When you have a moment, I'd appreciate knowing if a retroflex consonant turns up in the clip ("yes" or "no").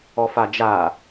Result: no